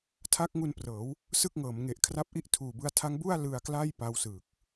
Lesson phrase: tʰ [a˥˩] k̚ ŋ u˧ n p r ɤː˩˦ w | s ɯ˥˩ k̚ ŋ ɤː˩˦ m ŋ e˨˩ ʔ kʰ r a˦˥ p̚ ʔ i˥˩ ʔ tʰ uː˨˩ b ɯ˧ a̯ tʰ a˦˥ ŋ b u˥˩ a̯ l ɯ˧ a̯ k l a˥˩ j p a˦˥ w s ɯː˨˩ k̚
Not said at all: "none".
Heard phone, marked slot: a˦˥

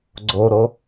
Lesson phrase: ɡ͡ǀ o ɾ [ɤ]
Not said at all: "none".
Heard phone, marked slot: o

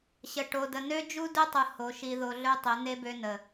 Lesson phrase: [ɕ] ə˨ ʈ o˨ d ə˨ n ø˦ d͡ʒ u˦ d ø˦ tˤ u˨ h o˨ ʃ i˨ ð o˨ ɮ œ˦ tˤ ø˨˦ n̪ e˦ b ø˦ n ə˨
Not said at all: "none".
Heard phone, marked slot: ɕ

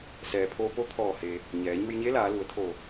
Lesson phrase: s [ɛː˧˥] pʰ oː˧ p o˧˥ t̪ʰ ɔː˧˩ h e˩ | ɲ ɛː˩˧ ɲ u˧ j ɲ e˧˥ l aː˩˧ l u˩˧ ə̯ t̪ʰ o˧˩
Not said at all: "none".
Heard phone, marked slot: ɛː˩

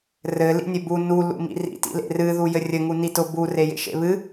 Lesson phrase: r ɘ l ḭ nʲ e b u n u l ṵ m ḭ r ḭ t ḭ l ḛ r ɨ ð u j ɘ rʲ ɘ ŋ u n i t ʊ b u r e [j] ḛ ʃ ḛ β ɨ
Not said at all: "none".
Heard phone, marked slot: j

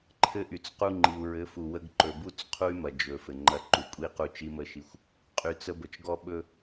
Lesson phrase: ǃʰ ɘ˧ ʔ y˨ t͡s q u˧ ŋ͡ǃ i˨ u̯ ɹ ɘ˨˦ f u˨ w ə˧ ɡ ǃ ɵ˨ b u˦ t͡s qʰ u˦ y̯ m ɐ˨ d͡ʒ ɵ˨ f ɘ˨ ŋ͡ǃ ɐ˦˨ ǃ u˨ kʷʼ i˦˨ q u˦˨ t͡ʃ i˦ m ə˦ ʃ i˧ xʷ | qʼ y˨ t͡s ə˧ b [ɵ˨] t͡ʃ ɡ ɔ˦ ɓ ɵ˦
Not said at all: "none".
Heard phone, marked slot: ə˨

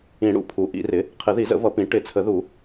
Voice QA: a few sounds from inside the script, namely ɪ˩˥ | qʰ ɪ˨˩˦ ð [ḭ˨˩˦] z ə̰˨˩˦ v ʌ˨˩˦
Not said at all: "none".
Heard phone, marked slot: i˨˩˦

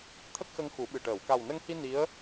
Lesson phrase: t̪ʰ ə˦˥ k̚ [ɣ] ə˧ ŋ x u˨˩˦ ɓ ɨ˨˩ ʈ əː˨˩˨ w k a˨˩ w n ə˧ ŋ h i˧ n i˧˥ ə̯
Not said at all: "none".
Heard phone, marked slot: x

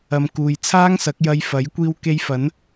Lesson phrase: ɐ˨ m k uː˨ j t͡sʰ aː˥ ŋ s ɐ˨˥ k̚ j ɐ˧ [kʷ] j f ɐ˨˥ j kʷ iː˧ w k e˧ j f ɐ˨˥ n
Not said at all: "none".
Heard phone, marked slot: none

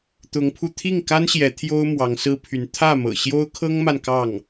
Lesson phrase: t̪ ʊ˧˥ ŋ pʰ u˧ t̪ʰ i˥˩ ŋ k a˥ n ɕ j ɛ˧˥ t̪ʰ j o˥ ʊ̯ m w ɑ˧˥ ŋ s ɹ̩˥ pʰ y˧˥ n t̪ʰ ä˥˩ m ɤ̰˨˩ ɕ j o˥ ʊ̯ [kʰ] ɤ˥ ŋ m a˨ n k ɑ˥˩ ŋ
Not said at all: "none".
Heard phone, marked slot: kʰ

